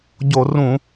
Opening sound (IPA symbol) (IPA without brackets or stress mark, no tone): ɟ